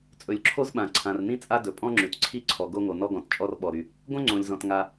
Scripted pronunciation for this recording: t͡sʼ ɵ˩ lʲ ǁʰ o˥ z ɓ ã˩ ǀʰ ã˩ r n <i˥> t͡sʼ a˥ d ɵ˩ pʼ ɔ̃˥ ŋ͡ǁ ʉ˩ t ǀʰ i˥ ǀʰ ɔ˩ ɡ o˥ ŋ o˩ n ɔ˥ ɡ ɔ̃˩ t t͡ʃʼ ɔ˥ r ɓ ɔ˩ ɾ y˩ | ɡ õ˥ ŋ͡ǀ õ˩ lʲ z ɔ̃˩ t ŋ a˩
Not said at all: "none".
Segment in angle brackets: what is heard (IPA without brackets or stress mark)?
ĩ˥